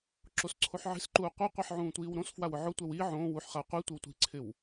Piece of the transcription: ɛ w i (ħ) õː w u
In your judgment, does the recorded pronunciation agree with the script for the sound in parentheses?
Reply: no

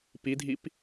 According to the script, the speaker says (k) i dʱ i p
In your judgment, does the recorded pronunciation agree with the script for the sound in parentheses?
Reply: no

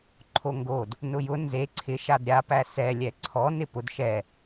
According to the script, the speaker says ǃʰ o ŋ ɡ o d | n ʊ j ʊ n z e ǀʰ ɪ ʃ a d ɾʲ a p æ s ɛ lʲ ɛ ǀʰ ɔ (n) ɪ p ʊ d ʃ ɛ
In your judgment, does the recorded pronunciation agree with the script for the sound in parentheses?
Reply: yes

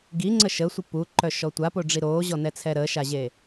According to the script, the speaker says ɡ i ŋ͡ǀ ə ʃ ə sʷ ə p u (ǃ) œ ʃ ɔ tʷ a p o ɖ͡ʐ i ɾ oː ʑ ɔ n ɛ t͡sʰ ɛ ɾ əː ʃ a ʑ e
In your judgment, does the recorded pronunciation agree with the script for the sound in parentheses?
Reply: yes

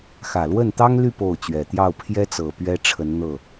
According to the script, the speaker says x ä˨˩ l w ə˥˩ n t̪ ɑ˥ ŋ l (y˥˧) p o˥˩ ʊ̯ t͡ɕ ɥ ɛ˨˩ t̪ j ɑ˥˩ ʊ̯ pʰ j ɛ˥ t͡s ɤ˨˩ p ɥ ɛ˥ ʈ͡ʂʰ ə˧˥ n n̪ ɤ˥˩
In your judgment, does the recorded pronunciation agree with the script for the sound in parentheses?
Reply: yes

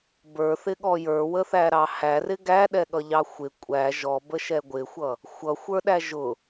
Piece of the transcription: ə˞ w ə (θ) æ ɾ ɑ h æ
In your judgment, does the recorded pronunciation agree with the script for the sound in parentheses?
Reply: yes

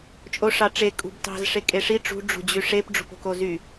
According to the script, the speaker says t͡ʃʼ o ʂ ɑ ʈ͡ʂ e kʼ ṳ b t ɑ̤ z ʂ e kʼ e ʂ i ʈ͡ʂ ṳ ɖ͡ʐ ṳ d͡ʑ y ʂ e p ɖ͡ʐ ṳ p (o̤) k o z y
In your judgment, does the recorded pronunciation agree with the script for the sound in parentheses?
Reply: yes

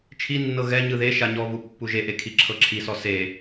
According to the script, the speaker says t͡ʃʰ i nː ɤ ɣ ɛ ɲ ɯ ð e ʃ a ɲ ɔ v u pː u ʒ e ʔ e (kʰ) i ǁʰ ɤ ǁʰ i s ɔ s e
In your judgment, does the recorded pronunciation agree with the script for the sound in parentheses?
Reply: yes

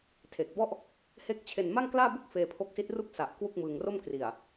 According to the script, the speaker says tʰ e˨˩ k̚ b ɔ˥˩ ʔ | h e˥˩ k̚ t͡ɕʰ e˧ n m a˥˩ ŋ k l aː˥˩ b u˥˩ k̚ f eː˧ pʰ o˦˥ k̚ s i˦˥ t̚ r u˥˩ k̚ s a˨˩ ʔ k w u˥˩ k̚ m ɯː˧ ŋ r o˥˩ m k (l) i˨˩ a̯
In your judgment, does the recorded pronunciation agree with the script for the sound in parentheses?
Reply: no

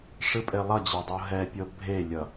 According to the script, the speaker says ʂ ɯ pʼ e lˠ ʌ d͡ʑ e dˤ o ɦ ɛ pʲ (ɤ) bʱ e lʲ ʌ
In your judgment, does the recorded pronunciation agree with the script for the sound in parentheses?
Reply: yes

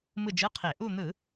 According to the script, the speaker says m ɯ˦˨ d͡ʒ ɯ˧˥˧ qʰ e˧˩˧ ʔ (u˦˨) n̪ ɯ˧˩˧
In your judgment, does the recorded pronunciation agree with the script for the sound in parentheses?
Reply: yes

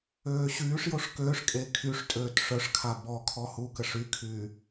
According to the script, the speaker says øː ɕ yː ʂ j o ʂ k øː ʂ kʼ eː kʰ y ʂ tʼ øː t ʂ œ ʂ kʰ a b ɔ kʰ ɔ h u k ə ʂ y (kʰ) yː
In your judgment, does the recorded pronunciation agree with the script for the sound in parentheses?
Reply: yes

